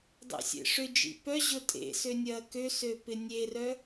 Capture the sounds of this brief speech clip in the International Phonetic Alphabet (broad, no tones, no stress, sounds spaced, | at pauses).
dˤ ḛ sʲ ḛ ʂ ʏ d͡ʒ ḭ p œ ʑ ʊ tʼ ḛ s ø nʲ ɐː k ø s ø p ɪ nʲ e r œ